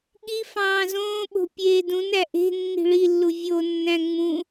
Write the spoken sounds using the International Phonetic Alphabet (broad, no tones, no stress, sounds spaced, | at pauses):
ɠ i f ɑ̃ː z õː ɓ o̤ pʲ eː d ũ n æ ʔ e̤ nː i̤ ɭ i lː u vʲ o nː æ̃ ŋ͡m ũ